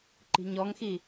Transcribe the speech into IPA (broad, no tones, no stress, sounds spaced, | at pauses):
ǃ i̤ ɲ ɔ ŋ x i